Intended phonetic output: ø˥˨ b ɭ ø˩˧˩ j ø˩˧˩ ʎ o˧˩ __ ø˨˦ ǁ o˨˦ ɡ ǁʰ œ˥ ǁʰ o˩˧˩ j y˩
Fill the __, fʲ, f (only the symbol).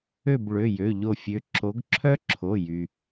fʲ